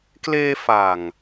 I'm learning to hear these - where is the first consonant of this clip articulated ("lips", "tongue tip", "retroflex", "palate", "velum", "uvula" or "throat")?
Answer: velum